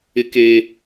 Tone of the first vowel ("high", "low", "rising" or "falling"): high